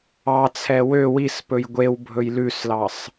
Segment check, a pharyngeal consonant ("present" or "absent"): absent